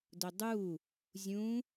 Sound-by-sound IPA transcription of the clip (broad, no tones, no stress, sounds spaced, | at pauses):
d ʊ dˤ u | zʲ ũ